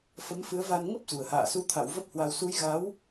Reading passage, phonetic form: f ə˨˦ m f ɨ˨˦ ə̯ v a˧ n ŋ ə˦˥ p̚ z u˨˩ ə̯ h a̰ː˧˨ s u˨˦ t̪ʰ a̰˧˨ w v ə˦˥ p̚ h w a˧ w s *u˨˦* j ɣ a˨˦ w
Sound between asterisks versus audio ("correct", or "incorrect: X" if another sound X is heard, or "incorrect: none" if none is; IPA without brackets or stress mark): correct